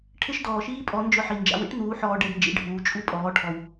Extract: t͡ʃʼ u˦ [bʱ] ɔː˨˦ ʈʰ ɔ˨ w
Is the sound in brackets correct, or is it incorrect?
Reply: incorrect